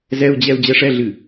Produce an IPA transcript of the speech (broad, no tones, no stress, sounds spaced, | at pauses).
z ɛ u̯ d͡ʑ ɛ u̯ d͡ʑ ɛ ʂ ɛ ɮ ɨ